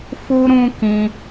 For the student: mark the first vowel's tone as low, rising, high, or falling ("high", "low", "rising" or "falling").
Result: high